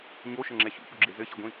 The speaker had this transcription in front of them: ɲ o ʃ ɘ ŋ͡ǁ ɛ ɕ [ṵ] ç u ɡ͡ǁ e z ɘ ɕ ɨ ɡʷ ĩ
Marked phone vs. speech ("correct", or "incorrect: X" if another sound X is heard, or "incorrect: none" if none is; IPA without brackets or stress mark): correct